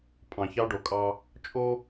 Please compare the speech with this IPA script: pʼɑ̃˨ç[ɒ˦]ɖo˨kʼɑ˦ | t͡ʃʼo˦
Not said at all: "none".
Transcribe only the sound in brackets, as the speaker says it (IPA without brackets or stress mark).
ɑ˦